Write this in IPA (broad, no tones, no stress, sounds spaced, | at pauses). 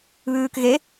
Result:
β ʉː k ɣ e